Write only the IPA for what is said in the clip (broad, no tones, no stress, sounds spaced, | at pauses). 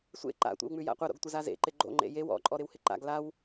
sʷ ḛ ǃ a̰ tʷ ḛ w ŋ͡m ʉ j a̰ qʷ ɐ ɾ o̰ ɡ tʷ ə z a z ḛ ǃ ɪ ɡ͡ǃ o̰ ŋ͡ǃ ḛ j e w ɔ̰ ǃʼ ɔ ɾ ɪ w h ɪ ǃ a̰ ɡ l a w